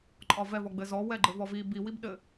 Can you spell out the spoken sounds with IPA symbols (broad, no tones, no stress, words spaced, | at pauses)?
ǃʼɒvɛ vɔɡ͡bɘzɔ wɛɡ͡ǃɘvɔvi bi wibɗɘ